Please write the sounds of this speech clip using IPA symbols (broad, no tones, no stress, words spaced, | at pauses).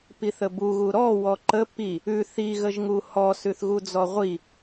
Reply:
piθəbuɣu ɾɔ wɔǃə pi | ʉ θiɣəʒŋu hɔsʉθɣu d͡zɔʁʷi